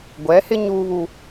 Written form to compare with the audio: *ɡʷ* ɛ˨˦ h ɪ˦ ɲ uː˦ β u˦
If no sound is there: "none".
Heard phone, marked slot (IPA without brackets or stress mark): ɡʷ